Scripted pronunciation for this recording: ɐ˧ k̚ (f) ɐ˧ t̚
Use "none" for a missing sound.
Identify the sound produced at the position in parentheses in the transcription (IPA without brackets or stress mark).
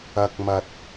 m